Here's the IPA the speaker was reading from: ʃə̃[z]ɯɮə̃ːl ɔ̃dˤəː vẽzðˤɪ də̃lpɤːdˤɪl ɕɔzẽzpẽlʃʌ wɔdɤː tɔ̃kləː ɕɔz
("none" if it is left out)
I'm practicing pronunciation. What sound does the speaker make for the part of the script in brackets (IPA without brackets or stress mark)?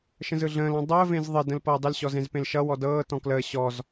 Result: z